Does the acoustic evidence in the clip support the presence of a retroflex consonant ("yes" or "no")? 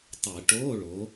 yes